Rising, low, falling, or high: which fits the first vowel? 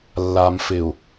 low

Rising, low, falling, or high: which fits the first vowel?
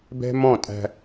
high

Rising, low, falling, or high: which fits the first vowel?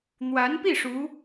rising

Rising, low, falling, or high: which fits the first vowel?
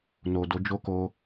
low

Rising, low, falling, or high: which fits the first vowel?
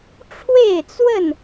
falling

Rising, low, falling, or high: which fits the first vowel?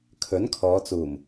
rising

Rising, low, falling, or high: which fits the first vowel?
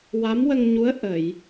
rising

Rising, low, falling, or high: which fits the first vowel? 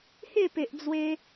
falling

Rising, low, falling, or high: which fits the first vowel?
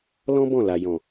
high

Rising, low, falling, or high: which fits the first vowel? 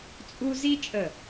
high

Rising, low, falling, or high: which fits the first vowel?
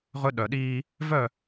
high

